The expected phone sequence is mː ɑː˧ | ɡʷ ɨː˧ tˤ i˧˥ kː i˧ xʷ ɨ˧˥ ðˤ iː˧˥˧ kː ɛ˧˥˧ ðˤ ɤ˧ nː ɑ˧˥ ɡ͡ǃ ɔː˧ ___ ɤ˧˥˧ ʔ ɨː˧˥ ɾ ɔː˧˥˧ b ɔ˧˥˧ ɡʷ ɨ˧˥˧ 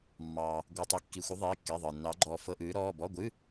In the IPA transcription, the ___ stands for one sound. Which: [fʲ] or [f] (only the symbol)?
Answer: f